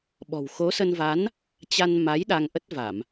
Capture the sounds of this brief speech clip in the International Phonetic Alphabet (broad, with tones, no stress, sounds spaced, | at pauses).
ɓ ɔ̤˨˩ w x o˨˦ s ə˧ n v a˨˦ n | t͡ɕ a˧ n m a˨˦ j ɗ a˧ ŋ ʔ ə˦˥ t̚ v a˧˩˨ m